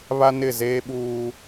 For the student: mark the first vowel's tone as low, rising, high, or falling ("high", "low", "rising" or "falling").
high